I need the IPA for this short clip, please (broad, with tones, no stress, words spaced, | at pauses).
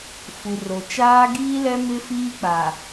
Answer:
fu˨ro˨t͡ʃaː˦ ɡiː˦lɛ˦ mɪ˦ fiː˦k͡pa˨